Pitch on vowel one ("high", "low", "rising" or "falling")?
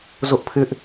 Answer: high